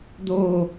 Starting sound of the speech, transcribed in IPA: d̪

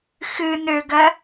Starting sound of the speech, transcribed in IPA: x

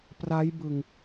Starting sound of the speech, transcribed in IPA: p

